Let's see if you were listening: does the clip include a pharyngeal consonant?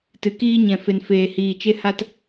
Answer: no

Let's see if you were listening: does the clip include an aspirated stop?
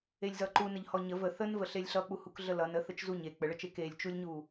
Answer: no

